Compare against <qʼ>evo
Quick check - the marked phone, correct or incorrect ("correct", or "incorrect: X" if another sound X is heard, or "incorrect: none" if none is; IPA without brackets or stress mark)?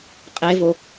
correct